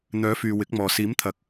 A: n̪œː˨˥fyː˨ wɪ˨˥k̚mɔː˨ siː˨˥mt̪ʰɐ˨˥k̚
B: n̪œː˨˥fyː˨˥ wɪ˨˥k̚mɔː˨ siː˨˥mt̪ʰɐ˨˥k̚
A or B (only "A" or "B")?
A